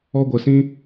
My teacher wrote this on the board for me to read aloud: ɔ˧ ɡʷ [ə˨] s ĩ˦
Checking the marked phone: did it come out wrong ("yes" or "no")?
no